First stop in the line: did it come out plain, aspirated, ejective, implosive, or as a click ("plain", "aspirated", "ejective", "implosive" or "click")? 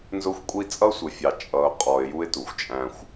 ejective